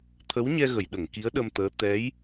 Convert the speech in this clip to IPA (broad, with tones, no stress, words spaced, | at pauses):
t̪ʰə˧˥wɲɛ˧ ɣə˨˩˨jɗə˨˩˨ŋki˧˥ə̯ɗə˧m t̪əː˧˥ t̪ɛ˧˥j